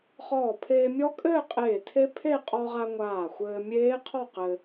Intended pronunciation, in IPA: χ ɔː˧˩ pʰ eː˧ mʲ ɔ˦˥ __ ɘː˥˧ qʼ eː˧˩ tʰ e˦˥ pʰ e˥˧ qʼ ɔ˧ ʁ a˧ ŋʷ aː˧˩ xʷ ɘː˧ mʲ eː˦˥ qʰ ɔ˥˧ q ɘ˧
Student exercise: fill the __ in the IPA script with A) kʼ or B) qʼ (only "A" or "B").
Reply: A